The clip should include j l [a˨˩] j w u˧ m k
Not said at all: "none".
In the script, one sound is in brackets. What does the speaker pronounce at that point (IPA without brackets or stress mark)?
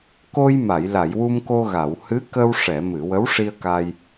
a˨˩˨